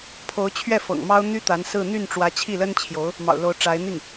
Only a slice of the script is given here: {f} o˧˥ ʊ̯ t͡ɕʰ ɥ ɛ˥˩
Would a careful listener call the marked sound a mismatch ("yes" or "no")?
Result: yes